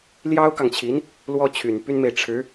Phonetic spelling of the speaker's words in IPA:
l j ɑ˥ ʊ̯ k ɑ˨ ŋ t͡ɕʰ i˧˥ n | l w ɔ˥ t͡ɕʰ y˨˩ n p y˥ n m e˨ ɪ̯ ʈ͡ʂʰ ɻ̩˧˥

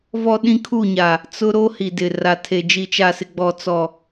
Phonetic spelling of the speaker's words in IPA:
v ɔ˦ ɗ ĩ˦ kʰ u˦˨ ɲ a˨ | t͡s ʊ˦ ɾ o˦ h i˨ d ɪ˨ r a˨ tʰ e˨ d͡ʒ i˨ t͡ʃ a˨ s ɪ˨ ɡ͡b ɔ˨ t͡s ɔ˨

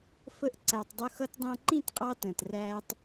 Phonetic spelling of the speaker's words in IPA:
f ə˧ ʔ ǀ æ˨ tˤ dˤ ʊ˧ x ʌ˧ t dˤ æ̃˧ ǃ ĩ˦˨ t qʼ ɑ˧ t ə̃ː˨ t r æː˦ tˤ

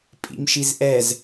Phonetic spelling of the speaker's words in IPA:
pʼ ḭ m ʃ i z ʔ ɛ z

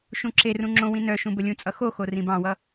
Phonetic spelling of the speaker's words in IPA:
ʃ ũ ǁ e r ũ ŋ͡ǁ õ w ĩ n œ ʃ ũ b ə lʲ ũ t͡sʼ ʌ x o x o r ĩ b ɑ̃ w ʌ

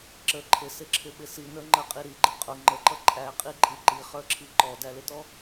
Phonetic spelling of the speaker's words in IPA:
ǁ ə ǃʰ ɪ s ɪ ǁʰ ɪ ɓ ɪ s i n ə˞ ŋ͡ǃ ə qʼ i ɾ i ɡ͡ǃ ɪ qʼ ʊ ŋ͡ǃ ə ǃ ʌ ǃʼ æ qʼ i ǃʼ i ǃ i χ ə˞ ǁʰ i ǃ ɔ d æ l ɪ t ɔ

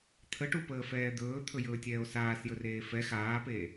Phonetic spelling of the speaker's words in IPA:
t̪ʰ ə ʈ u p əː f ɛː d̪ ɵː t̪ʰ ɵ j ɵː tʲ ɛː o̯ s aː s j ɵ r eː f ɛ x aː p eː

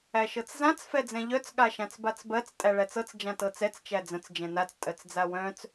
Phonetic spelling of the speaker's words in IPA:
æ ʃ ɤ t͡s z ã t͡s f ɛ d͡z ɛ̃ ʎ œ t͡s ɠ a ʃ ã t͡s b a t͡s b ɜ t͡s tʼ æ ɭ æ t͡s ɤ t͡s d͡ʒ ã t ɤ t͡s ɛ t͡s t͡ʃ æ d͡z ə̃ t͡s d͡ʒ ɛ̃ n a t͡s tʼ ɜ t͡s d͡z a w œ̃ t͡s

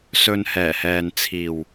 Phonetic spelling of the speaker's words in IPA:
s ɵ˧ n h ɛː˨˩ h ɛː˨ n t͡sʰ iː˨ w

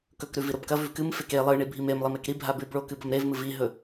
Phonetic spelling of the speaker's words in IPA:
k ɵ k ɾ ʉ v i ɾ o b k ɐ v ʉ v k ɨ m f e k e lˠ ɨ ɳ i bʱ i m e m lˠ i m e k ɾ i bʱ a b ʉ b ɭ o k ɨ b ɐ m ɾ e v m ɨ v i ɦ ɵ

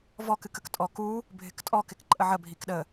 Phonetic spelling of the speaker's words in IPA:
v ɔ k ɨ k ə k tʼ ɔ k u | bʱ ɪ k tʼ ɔ k ɪ k ǃʼ ə ʕ ə bʱ i k ɗ ə

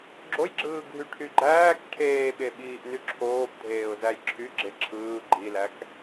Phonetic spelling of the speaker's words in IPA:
ɡ͡ǁ o j ɡ͡ǁ ɯː ɡʱ y ʈʰ y ɡ͡ǃ æː k ʈʰ eː ɓ e ɓ iː ʔ n y ǁʰ oː b dʱ eː ʊ̯ z æ j ǁʰ y ɡ͡ǁ e ǁʰ ɯː ɡ͡ǃ i l æ k

